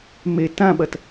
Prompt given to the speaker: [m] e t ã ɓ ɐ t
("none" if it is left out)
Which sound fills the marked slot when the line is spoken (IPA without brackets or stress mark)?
m